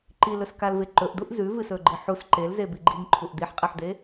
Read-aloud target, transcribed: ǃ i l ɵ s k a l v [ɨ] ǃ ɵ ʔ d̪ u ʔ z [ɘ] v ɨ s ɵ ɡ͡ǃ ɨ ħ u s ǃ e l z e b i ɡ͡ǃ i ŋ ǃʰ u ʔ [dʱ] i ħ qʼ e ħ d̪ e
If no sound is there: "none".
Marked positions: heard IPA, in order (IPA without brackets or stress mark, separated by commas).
e, ʉ, d̪